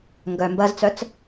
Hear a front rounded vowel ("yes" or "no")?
yes